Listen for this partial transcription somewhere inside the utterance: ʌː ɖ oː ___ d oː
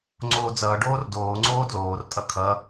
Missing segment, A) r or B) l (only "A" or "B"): A